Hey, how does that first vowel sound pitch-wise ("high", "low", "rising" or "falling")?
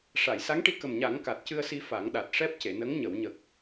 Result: low